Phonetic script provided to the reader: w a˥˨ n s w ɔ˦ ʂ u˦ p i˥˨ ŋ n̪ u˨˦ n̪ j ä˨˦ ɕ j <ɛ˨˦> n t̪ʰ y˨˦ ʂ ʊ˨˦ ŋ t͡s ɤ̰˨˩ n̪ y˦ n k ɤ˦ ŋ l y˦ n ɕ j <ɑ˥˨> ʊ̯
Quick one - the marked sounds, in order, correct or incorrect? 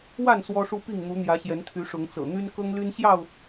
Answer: correct, correct

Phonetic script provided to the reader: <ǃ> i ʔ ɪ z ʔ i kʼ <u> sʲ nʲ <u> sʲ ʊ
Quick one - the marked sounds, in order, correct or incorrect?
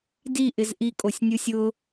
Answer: incorrect: d, incorrect: o, correct

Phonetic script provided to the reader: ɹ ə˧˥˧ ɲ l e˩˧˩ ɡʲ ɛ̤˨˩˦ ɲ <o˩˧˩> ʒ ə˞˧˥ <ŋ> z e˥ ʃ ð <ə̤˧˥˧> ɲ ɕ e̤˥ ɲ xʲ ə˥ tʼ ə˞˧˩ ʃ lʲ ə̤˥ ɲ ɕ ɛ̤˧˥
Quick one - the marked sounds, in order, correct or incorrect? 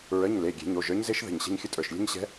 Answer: correct, incorrect: ɲ, incorrect: ə̤˧˩

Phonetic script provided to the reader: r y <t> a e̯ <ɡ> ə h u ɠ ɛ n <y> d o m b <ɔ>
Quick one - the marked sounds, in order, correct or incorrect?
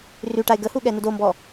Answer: incorrect: ʈ, correct, incorrect: u, correct

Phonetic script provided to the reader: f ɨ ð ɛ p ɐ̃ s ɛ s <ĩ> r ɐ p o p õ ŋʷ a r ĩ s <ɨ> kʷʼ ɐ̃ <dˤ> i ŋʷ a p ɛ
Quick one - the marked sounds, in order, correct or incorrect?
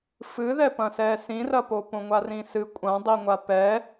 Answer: correct, correct, correct

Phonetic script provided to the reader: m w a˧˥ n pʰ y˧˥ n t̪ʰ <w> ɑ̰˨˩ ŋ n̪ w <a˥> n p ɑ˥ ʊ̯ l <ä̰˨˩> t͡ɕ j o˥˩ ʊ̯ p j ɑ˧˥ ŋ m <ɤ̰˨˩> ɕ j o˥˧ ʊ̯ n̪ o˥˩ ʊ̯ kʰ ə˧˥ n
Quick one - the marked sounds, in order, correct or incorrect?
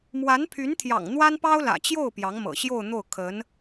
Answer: incorrect: j, correct, correct, correct

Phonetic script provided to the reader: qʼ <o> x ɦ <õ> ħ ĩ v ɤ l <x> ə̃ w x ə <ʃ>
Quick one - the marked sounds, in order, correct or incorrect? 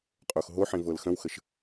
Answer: correct, incorrect: o, correct, correct

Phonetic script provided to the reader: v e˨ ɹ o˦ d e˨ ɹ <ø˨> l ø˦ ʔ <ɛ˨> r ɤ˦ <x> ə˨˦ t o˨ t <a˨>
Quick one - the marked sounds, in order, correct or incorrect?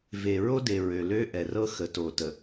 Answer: correct, correct, correct, incorrect: ə˨

